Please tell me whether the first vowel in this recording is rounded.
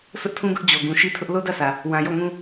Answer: yes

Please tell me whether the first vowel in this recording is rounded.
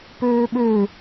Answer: yes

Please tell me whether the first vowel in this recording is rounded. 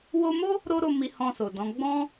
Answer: yes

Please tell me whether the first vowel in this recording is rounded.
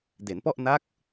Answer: no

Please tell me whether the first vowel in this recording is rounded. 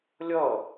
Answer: no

